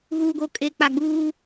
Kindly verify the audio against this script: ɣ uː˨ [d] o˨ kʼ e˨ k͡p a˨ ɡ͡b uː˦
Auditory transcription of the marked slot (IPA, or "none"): ɡ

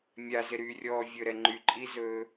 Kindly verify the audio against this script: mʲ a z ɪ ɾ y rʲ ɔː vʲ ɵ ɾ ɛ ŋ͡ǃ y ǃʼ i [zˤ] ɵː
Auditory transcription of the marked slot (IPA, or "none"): z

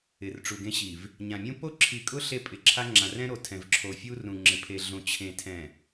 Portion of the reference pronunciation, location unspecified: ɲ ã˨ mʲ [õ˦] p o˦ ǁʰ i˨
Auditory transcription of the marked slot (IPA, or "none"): ũ˦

